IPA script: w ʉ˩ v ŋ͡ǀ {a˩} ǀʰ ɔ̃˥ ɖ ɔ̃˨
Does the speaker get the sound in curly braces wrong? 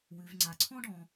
no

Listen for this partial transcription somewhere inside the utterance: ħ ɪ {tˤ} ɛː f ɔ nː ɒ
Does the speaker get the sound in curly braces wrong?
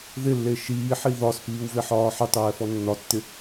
no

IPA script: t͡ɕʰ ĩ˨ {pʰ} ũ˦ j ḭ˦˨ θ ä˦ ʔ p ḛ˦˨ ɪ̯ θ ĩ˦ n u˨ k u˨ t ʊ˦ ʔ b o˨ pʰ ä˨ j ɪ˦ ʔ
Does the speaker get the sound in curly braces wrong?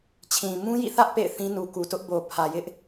yes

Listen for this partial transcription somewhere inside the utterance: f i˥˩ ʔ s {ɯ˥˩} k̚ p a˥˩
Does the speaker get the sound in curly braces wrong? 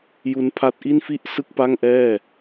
no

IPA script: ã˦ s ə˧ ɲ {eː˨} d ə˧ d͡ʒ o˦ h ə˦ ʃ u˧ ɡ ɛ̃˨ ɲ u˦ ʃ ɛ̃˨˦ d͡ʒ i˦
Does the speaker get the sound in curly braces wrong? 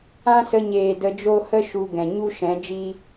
no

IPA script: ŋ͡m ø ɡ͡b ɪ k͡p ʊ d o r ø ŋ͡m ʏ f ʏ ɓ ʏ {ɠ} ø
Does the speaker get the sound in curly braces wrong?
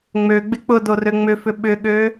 no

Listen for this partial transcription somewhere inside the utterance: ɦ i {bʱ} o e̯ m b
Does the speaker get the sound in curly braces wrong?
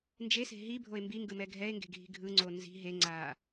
no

